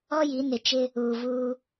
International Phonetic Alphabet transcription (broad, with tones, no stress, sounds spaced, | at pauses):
ɔ˦ j i˨˦ n ɪ˨ t͡ʃ ɪ˦ | uː˨ v uː˦